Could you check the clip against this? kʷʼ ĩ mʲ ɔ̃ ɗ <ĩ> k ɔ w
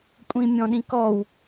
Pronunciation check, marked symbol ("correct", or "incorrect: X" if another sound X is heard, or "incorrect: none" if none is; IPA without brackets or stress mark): correct